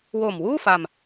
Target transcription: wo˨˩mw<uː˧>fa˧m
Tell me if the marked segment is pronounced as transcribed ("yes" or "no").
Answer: no